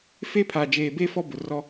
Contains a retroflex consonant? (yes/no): no